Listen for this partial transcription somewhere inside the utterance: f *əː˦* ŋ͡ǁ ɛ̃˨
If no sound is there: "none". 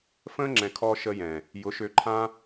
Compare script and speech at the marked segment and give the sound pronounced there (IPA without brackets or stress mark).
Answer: ə̃ː˦